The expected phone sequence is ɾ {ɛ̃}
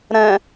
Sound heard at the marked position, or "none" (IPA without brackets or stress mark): ɛ̃